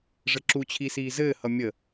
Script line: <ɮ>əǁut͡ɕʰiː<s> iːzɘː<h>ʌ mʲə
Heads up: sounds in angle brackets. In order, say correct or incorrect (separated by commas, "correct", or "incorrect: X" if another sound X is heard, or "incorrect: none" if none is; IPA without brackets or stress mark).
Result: incorrect: ʐ, correct, correct